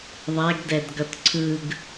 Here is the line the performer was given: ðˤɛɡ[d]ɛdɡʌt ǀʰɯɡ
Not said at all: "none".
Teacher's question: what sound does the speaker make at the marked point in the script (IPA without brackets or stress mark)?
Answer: d